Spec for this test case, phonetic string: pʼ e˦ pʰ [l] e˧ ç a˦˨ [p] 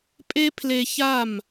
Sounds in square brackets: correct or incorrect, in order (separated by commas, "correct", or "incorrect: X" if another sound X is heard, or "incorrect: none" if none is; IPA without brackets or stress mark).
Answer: correct, incorrect: m